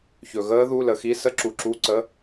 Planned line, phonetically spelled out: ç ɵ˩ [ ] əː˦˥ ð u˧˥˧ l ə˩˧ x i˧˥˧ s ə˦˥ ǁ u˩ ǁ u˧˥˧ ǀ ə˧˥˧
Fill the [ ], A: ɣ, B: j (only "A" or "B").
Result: A